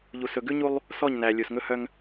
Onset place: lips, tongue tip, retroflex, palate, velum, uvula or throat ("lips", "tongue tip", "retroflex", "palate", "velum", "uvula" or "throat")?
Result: palate